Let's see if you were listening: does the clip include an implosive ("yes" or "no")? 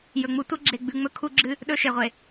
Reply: yes